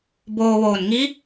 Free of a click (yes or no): yes